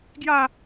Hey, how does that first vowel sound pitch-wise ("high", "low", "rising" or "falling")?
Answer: falling